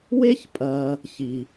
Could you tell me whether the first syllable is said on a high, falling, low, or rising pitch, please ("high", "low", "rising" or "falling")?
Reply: high